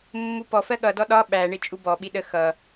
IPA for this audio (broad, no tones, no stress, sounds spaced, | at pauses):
mː u p ɔ f ɜ ɠ ʌ d ɔ ɗ ɒ ɓ æ ɳ ɪ t͡ʃʼ u b ɔ ɓ i ɗ ə x ʌ